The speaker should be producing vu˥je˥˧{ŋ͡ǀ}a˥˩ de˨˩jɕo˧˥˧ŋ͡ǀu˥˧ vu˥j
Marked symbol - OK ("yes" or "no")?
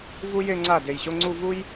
yes